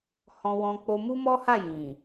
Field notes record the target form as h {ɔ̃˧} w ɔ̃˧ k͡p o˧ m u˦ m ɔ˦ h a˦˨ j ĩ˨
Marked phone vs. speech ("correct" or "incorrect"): correct